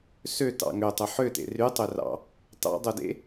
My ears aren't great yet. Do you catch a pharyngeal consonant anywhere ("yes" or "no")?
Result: yes